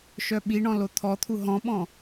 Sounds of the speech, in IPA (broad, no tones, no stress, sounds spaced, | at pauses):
ʃ œ ɓ i ɳ ɔ̃ l o t̪ʰ ɔ t̪ʰ u ɦ ɔ̃ ɓ ɔ̃